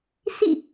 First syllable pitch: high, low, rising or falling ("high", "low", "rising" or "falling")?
falling